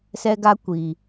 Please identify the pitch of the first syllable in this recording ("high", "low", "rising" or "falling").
high